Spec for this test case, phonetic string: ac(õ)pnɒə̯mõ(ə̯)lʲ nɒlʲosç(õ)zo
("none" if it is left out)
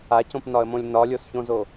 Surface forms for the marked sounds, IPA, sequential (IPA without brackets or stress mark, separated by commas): õ, none, õ